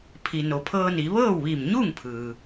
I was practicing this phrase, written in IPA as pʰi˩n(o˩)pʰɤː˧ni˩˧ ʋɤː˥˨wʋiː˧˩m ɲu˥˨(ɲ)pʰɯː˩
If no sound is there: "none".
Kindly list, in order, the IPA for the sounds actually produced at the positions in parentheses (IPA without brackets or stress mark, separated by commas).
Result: o˩, ŋ